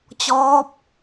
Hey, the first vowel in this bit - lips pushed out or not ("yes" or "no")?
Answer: yes